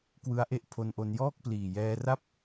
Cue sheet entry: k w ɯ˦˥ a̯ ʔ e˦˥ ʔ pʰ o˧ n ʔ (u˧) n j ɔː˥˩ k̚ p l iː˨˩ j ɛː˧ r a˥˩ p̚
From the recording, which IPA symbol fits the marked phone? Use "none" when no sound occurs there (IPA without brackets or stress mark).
o˧